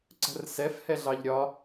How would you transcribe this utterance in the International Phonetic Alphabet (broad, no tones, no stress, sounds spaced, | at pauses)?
ǀ ə̤ r s ɛ f h ɛ ɮ ɑ ʎ ɾʲ ɒ